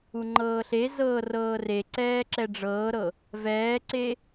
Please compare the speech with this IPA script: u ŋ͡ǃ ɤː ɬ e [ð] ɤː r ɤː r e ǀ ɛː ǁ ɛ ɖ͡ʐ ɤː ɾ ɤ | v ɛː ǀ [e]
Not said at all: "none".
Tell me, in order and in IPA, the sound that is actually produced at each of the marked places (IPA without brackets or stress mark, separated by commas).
z, e